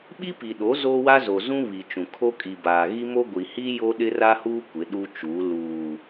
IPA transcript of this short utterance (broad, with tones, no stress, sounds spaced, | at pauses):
ɓ i˦ p i˨ ɗ o˨˦ z o˦ w a˦ z o˨ z ũ˦ β i˨ t͡ʃ ũ˨ kʰ o˦ kʼ i˨ b aː˨ ɣ i˦ m o˦ ɡʷ i˨ h i˦ j o˦ ɗ ɪ˦ r a˦ h uː˦ kʷ ɪ˨˦ ɗ u˦ t͡ʃ uː˨˦ l uː˨